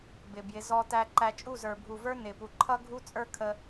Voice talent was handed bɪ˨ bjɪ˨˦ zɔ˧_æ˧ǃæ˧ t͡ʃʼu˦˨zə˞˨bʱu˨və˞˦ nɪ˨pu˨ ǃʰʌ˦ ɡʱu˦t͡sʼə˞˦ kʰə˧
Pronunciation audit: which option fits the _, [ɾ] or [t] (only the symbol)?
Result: t